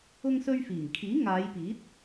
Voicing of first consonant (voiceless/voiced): voiced